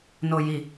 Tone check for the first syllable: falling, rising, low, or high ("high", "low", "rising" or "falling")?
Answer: low